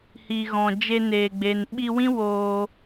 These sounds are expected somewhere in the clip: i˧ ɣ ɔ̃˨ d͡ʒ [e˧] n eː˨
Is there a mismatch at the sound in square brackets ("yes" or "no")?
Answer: no